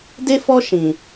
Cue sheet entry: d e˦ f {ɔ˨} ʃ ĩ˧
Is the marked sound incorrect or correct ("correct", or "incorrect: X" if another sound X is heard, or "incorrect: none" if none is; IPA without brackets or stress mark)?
incorrect: ɔ˦